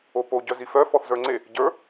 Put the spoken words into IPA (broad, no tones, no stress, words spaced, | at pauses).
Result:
opo ɟœzifœ fɔθzə˞ŋ͡ǀe | ɟə˞